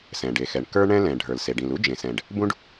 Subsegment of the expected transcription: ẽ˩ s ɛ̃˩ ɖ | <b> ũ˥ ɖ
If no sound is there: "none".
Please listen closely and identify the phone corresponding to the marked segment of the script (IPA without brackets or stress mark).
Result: b